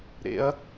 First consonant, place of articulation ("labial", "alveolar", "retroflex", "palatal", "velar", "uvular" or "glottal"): alveolar